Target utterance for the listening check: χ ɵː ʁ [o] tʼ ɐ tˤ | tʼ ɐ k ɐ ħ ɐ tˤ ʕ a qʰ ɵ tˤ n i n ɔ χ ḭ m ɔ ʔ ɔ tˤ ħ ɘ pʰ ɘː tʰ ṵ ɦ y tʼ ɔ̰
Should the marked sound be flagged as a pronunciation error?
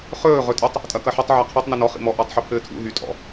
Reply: yes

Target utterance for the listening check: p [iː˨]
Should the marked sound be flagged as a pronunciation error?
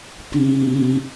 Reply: yes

